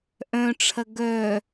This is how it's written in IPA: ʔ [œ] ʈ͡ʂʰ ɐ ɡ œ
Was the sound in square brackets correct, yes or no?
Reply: no